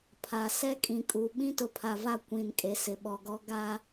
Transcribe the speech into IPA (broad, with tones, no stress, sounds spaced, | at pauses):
pʰ a˨ s ɛ˦ kʼ ĩ˨ kʼ u˨ ɓ ĩ˦ t ʊ˨ pʰ a˨ v a˦˨ kʷ ĩ˨ n kʼ e˨ s ɪ˨ ɓ ɔ˨ ɡ ɔ˦ ɡ a˦